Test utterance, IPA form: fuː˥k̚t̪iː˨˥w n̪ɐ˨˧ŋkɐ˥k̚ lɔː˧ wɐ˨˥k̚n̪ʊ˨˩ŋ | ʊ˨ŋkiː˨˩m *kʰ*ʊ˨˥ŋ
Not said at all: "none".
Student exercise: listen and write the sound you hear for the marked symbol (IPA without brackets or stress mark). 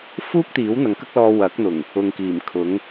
kʰ